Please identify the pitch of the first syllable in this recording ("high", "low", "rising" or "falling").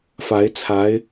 rising